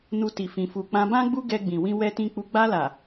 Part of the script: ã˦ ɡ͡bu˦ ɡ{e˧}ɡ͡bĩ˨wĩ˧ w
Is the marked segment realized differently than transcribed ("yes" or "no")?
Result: yes